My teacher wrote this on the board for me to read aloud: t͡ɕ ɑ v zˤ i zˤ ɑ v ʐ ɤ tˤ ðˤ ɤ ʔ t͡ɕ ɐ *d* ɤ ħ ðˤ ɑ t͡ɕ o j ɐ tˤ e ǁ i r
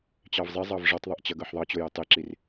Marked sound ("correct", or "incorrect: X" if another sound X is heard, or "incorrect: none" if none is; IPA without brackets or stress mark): incorrect: ɡ